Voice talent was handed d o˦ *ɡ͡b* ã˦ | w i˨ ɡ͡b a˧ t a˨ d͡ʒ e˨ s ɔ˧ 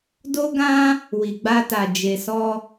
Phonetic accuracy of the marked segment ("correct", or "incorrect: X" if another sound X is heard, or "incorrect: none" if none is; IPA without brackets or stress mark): incorrect: ɡ